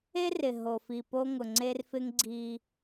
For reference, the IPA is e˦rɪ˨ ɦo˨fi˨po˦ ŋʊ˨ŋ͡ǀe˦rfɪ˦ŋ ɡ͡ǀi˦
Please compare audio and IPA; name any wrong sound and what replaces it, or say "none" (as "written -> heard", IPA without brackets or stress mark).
none